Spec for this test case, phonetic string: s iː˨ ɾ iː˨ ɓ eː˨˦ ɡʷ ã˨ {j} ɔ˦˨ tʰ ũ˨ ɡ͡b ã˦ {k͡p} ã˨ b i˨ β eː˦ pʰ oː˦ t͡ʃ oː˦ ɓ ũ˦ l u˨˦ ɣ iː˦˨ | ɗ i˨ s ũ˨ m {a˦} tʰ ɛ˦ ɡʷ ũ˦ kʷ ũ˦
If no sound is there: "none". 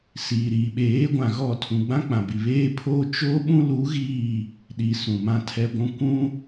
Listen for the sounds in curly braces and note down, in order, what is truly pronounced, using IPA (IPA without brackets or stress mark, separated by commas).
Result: ɣ, k͡p, ã˦